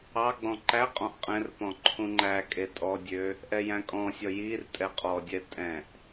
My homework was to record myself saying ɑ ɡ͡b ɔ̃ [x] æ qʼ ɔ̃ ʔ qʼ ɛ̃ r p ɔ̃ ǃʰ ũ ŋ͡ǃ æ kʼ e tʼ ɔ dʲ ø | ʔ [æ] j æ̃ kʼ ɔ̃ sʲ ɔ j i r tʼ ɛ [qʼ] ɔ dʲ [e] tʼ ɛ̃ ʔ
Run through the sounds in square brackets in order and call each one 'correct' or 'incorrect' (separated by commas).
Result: incorrect, incorrect, correct, incorrect